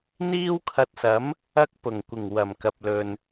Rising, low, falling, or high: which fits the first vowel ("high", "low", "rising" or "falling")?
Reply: high